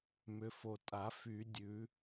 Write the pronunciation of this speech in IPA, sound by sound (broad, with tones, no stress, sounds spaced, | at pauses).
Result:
m ʏ˨ f o˨ tʼ a˨˩˦ f y˨˩˦ dʲ ʉ˨˩˦